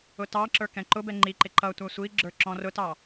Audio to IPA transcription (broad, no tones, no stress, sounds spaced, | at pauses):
ʊ t ɑ ǁ ə˞ k ɛ̃ ǃ ʊ b ɛ ŋ͡ǃ i ǃ ɪ ǃ ʌ tʷ æ sʷ i ɡ͡ǁ ə˞ ǁ ɔ̃ r ʊ t ɑ